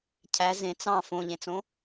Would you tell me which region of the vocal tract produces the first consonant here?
palate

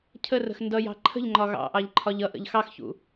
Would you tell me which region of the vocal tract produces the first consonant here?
palate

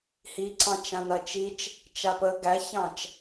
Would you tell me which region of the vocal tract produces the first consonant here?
throat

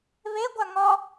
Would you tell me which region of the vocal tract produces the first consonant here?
lips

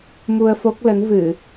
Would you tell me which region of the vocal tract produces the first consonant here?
lips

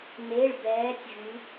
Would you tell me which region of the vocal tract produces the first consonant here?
lips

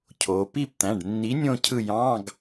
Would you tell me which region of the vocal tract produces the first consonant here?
palate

